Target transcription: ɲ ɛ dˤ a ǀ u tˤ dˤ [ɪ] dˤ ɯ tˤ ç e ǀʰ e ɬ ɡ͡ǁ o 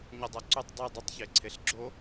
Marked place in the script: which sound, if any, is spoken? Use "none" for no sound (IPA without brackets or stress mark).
i